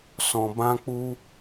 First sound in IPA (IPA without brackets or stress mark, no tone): s